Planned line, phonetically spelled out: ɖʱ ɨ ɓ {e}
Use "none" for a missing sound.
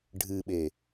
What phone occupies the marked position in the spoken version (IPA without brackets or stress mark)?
e